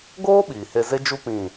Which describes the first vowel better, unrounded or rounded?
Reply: rounded